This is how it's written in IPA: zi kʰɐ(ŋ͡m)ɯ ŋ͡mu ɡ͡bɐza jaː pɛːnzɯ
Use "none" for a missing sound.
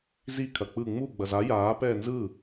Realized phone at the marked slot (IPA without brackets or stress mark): k͡p